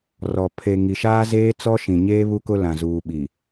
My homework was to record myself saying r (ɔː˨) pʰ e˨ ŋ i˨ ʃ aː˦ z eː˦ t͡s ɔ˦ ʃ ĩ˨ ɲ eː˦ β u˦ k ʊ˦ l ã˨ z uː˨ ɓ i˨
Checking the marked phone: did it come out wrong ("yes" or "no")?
yes